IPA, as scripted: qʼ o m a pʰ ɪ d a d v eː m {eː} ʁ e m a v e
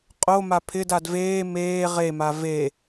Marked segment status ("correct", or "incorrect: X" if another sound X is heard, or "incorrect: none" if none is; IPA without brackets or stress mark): correct